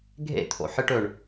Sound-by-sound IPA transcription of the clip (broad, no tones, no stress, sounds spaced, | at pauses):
ɡʱ ḛ t̪ʰ o̰ ħ ɨ ʈ ɵ ɳ